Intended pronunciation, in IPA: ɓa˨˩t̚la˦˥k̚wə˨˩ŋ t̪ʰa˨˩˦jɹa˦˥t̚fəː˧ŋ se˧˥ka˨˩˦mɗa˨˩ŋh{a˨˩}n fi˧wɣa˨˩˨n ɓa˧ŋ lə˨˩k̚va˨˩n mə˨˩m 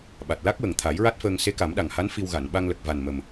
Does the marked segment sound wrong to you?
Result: yes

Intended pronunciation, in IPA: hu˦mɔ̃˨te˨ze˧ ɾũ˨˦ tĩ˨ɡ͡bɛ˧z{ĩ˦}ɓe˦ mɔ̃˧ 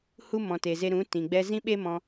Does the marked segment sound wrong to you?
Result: no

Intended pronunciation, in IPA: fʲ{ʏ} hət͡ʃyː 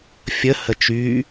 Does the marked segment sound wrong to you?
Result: yes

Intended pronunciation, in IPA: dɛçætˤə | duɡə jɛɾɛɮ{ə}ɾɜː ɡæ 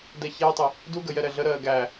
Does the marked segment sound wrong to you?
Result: no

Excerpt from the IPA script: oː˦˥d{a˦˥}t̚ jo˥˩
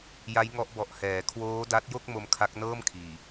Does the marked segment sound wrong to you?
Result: no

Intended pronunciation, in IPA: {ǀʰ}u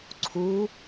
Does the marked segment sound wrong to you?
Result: no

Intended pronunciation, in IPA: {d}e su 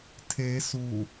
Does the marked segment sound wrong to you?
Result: yes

